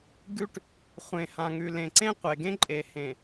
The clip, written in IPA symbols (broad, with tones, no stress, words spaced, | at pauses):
ɡʉ˦ʈ | χʷẽ˨hã˨ŋʉ˨ lẽ˨ǀẽ˦qʷe˨ɡẽ˦ ǃʼe˨hẽ˨